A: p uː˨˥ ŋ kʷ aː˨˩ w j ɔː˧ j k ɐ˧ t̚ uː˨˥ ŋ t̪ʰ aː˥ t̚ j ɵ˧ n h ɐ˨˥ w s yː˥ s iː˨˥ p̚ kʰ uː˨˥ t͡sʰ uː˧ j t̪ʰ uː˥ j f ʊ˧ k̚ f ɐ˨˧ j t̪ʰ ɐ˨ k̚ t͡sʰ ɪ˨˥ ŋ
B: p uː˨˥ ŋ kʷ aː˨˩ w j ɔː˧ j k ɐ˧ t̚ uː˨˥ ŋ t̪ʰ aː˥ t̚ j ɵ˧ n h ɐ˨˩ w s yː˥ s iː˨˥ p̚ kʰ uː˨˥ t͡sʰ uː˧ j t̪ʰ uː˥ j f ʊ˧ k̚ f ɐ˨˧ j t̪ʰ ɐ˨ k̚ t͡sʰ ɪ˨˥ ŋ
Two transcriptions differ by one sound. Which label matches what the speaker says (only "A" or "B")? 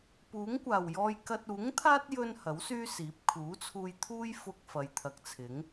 A